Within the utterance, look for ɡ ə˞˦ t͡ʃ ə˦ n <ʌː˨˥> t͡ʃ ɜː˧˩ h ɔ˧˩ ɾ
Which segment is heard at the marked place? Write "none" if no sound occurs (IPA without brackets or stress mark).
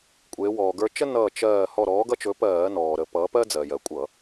ʌː˧˩